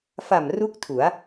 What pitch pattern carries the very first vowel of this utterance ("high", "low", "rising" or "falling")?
low